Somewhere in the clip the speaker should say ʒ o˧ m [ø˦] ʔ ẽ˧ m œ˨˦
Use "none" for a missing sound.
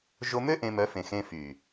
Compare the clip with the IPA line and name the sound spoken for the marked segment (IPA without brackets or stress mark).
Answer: ø˦